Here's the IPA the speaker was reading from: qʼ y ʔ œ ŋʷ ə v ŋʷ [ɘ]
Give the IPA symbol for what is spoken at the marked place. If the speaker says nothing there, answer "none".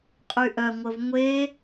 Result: e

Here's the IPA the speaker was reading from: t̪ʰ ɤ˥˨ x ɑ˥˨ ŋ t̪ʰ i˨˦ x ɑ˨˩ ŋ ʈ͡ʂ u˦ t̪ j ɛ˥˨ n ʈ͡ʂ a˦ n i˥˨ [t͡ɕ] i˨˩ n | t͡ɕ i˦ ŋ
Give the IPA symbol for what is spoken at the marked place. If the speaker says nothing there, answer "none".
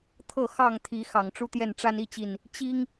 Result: t͡ɕ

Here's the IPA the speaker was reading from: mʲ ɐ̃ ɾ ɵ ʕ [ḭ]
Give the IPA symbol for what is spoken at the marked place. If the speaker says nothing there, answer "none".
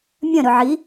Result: i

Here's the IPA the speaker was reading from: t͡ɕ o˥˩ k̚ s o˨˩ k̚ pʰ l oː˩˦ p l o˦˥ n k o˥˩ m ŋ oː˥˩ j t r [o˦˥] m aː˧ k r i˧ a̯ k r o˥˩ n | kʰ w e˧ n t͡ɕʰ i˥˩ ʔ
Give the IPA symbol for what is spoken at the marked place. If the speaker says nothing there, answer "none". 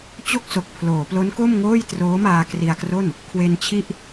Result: oː˦˥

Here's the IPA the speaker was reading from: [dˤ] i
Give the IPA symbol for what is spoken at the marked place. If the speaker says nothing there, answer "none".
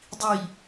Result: dˤ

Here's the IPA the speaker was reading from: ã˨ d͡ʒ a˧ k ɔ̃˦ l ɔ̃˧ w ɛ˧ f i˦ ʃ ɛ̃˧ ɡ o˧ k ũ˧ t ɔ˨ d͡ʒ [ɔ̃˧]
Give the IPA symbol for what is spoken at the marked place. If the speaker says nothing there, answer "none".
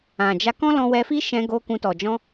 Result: ɔ̃˧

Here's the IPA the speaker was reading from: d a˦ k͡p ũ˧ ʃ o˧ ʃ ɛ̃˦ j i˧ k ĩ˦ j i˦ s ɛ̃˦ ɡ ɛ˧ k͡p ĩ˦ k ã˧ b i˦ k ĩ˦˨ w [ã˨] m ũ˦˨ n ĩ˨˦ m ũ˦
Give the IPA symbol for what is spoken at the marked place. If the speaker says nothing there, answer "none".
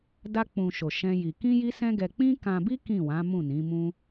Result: ã˨˦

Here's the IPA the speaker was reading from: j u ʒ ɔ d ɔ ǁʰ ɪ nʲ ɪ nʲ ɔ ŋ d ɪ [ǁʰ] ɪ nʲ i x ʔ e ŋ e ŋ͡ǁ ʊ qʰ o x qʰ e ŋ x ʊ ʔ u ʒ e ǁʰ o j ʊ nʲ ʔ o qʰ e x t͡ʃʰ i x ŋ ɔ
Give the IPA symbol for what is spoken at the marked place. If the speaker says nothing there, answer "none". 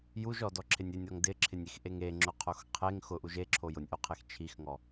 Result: ǁʰ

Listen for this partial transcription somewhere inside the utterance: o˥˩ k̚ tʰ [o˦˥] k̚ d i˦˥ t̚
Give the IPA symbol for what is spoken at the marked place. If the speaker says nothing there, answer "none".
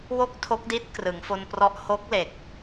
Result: o˦˥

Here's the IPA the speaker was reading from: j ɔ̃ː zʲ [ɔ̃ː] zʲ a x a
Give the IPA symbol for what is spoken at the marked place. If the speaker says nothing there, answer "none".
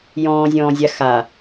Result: ɔ̃ː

